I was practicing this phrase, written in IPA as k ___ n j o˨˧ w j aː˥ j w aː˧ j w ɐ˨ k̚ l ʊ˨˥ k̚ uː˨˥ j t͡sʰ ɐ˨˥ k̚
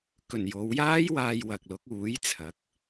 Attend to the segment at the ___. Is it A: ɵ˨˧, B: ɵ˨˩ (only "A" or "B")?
B